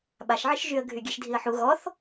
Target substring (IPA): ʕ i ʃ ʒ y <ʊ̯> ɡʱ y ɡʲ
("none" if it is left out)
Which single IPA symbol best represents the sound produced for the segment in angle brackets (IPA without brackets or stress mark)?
ə̯